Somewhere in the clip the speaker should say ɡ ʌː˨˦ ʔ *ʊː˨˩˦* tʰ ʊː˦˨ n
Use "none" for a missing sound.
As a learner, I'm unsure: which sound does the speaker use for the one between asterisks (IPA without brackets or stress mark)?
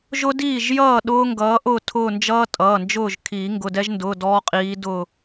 ʊː˦˨